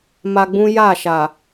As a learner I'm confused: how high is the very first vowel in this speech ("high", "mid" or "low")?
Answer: low